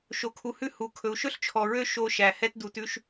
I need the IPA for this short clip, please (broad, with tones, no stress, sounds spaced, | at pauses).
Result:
ʃ o˨ kʰ u˨ h ʉ˦ h u˨ kʰ ɵ˨ u̯ ʃ ɵ˦ ɬ t͡ʃʰ ɔ˨ ɹ ø˦ ʃ o˦ ʃ æ˨ h ɛ˦ t d u˨ t ʉ˦ ʃ